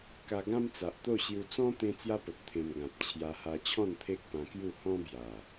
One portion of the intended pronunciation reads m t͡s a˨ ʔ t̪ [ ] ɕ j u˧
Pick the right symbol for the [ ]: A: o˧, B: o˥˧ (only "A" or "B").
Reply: B